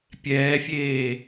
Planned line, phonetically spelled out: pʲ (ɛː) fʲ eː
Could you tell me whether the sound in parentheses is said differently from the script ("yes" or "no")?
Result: no